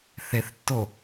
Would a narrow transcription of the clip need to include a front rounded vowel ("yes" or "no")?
no